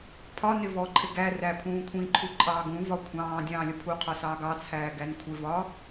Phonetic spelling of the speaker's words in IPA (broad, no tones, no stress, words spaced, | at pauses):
pʰɒnɪ vɔǃʼɪɡ æ ræpʰũːkʷʰĩǃʰu ǃʼɑːɡũvɒ kʷʰɑ̃ː dʲɑ̃ːlʲəpʰuqʰɒ sɑːɡɑt͡sʰæː ɡænkʷʰɪvɒ